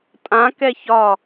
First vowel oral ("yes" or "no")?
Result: no